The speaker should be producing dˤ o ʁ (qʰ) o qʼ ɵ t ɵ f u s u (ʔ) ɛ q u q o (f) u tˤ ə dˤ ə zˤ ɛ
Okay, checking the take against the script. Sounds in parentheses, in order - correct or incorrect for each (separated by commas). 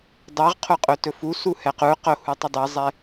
correct, incorrect, incorrect